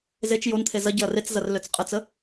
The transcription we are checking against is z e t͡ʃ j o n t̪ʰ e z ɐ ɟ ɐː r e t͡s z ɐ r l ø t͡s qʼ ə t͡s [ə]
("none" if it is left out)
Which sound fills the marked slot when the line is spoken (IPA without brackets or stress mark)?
ə